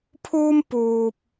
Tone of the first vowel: high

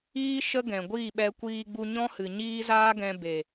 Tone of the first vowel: high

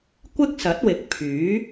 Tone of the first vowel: high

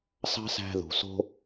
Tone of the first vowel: high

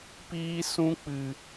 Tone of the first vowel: high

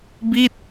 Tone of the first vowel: falling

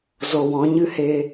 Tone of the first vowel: low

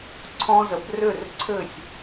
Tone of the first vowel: high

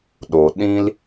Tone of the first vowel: low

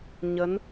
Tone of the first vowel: rising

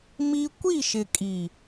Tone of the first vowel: high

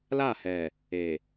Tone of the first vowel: falling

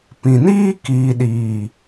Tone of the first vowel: low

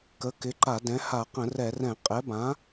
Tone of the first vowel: rising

